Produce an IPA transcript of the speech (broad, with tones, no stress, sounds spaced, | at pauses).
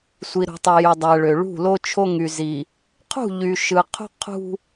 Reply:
sʷ i˨ ɾ ṳ˨ tˤ e˨ j y˨ dˤ æ˨ ɭ ø˨ ɭ ṳ˦˨ l o˦ t͡ʃʰ o˦ ŋ y˨ z i˨ | qʰ ṳ˦˨ ʎ y˨ ʃ ɯ˨ qʰ ṳ˦ qʰ ṳ˦